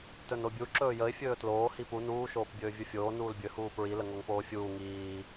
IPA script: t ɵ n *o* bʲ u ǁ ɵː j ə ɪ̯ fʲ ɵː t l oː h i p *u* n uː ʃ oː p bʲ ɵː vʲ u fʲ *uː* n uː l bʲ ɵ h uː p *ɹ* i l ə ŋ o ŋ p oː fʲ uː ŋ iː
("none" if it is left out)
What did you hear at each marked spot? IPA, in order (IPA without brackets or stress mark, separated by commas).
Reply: o, u, oː, ɹ